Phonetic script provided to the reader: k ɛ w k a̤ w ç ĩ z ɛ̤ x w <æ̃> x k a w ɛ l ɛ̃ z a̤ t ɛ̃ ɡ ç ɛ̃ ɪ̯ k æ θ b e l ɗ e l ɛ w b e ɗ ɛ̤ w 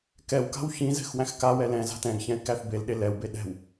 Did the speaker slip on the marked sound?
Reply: no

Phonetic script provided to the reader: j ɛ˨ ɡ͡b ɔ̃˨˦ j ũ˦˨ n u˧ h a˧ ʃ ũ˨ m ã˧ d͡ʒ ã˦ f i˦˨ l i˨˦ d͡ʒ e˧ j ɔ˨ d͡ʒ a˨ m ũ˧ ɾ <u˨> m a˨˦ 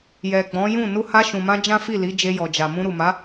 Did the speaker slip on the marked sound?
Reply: no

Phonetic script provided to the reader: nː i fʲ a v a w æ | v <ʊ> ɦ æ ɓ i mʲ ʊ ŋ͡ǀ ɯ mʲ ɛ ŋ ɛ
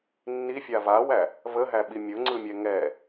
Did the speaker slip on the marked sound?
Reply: yes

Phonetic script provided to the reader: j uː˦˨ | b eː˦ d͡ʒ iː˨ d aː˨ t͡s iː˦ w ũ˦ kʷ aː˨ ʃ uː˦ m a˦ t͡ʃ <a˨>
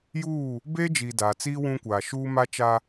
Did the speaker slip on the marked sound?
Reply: yes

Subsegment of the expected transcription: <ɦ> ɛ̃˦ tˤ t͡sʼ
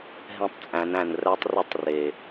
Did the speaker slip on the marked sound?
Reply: no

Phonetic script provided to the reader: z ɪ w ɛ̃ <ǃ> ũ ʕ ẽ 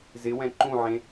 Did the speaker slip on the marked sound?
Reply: no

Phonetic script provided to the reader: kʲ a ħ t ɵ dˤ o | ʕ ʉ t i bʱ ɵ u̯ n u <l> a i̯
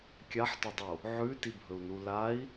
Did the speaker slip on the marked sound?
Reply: no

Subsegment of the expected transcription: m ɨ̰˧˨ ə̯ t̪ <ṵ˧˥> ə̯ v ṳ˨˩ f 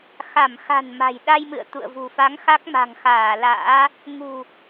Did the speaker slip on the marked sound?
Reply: yes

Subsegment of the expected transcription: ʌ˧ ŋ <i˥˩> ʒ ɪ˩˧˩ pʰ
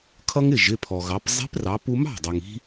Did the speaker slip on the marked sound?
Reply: yes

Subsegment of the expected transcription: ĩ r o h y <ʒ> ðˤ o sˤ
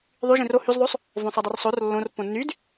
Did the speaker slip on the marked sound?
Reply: yes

